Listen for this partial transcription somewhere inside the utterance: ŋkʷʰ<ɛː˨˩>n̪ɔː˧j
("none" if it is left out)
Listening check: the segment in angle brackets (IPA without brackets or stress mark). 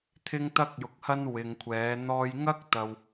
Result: ɛː˨˧